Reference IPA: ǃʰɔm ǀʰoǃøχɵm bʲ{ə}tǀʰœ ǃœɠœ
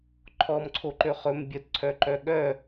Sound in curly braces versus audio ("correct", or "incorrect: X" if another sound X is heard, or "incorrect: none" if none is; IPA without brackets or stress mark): correct